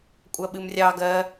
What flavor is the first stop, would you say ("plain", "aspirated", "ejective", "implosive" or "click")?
ejective